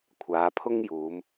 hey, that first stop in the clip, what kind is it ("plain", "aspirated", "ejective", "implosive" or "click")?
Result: aspirated